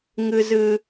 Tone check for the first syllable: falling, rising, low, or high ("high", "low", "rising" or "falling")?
low